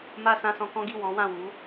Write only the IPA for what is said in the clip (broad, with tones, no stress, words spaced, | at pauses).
ma˧ sã˧sɔ̃˧kɔ̃˦ɡi˦˨ wɔ̃˨˦wã˦˨ wu˨˦